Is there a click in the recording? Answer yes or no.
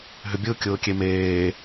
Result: no